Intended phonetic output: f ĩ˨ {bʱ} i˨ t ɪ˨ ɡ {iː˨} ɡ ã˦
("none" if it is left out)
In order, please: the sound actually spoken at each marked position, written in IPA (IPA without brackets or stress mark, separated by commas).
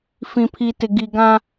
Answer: pʰ, i˨